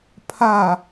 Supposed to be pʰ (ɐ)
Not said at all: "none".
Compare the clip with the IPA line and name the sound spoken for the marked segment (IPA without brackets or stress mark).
a